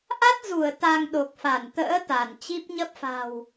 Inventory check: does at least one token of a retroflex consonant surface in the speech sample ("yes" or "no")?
no